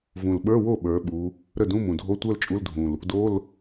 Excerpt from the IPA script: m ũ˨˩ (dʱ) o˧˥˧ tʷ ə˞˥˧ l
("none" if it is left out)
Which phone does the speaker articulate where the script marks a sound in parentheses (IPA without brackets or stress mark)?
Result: dʱ